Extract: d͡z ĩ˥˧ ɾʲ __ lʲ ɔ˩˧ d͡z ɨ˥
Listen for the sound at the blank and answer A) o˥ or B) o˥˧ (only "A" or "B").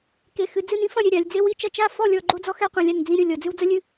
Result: B